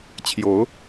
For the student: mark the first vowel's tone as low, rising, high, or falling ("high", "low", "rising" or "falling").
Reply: rising